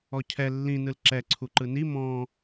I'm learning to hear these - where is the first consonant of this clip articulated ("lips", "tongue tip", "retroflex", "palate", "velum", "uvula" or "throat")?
palate